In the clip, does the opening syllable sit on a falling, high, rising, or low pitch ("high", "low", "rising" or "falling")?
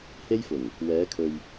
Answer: high